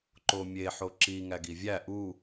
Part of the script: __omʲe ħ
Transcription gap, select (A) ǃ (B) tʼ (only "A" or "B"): A